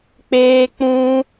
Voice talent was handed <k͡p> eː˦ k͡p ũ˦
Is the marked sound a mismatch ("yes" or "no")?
no